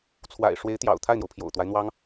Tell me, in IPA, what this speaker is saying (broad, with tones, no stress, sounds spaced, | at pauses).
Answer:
t͡sʰ w a̰˨˩ ɪ̯ ʂ w e˧˥ ɪ̯ t̪ j ɑ̰˨˩ ʊ̯ t̪ʰ a˥˩ ɪ̯ n̪ j o˩ ʊ̯ pʰ j o̰˨˩ ʊ̯ t̪ w a˦ ɪ̯ n̪ w ɑ˥ ŋ